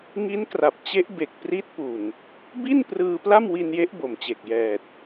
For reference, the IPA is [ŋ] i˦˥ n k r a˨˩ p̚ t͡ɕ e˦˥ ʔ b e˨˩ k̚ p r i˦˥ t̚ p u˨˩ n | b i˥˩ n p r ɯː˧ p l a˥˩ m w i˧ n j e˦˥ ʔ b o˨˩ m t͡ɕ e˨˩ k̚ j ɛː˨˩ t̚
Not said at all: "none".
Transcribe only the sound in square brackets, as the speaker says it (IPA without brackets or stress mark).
ŋ